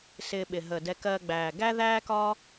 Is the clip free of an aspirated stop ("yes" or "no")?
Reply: yes